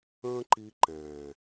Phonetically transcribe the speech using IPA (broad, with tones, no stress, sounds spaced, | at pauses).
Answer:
ə̃ː˦ ǃ i˧ ǃ ɛ̃ː˨